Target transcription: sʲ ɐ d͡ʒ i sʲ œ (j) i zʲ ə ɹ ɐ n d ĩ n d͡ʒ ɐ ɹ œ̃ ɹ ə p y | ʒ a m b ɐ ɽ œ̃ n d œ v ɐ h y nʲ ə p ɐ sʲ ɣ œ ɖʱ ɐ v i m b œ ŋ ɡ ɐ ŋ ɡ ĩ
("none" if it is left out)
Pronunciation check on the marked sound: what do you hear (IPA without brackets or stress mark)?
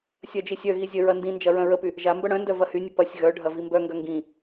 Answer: ɣ